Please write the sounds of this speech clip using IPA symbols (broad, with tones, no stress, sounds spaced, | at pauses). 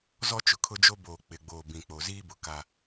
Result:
z ɔ˦ t͡ʃ ʊ˨ kʰ ʊ˦ d͡ʒ o˦ b oː˨ k͡p ɪ˨ ɡ͡b oː˨ b ĩ˨ k͡p o˨ z iː˦ b ʊ˨ k a˦